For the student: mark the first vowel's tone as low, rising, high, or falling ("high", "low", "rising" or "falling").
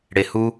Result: low